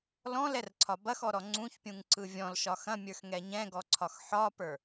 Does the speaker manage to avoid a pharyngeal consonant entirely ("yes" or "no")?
no